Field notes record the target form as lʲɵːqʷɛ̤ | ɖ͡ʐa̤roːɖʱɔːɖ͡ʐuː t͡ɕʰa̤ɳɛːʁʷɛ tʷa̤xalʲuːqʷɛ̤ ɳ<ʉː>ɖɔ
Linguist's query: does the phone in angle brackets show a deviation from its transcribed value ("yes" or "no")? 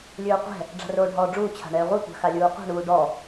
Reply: yes